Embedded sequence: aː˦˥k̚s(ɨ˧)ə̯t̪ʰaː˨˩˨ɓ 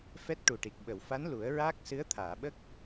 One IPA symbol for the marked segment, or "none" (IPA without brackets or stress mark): ɨ˧˥